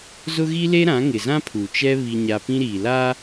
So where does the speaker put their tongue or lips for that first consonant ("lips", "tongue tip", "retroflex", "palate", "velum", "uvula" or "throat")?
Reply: tongue tip